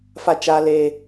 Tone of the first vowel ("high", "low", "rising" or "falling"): high